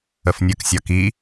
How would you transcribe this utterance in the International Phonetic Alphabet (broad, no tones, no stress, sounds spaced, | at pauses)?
ə f nʲ ə k sʲ ɒ k i